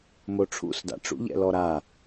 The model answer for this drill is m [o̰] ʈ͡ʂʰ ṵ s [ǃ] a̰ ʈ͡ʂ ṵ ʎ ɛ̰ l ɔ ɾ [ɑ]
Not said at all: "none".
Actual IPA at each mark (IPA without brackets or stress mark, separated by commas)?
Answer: o, d, a